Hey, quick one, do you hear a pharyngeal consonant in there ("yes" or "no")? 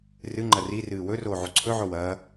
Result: yes